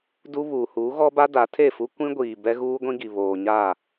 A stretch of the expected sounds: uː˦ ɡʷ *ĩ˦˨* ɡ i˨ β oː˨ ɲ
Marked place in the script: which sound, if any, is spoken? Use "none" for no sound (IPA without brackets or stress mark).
ĩ˦